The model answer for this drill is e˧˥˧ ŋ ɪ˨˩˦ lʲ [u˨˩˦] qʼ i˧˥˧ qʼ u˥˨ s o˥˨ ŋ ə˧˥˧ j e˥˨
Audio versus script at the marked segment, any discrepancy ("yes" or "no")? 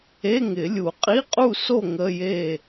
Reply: no